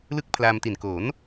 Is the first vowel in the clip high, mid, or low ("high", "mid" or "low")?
high